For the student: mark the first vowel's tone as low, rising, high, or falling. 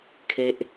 high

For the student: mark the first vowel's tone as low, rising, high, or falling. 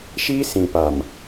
high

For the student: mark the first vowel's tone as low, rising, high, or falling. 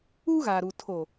high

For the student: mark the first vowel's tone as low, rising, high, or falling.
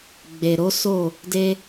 low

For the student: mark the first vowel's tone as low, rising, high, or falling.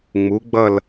rising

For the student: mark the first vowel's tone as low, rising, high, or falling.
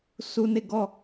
high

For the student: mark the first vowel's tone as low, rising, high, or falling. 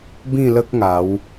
falling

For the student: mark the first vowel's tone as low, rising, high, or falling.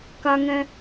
high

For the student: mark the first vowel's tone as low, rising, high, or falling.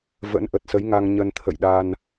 rising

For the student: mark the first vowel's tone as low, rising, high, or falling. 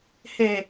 low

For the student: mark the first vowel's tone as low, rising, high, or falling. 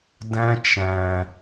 high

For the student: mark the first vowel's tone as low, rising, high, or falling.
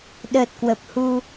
low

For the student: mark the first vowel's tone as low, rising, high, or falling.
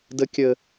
high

